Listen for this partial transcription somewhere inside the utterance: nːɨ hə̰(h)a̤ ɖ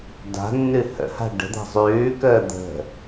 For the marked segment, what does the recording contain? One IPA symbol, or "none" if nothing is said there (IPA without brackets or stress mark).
h